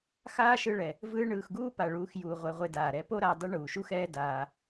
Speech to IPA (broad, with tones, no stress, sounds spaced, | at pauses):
x aː˦ ʃ ɯ˧ ɭ ɛ˨ | v ɯː˧ ɳ ɯː˨ x ɡ uː˦ p a˨ ɭ uː˨˦ x j uː˨ ʁʷ ɛ˧ ʁʷ e˧ d aː˨ ɾ ɛ˨˦ p o˦ ɾ a˧ dˤ ɯ˦ ɳ uː˨ ʃ u˦ x ɛː˦ d aː˧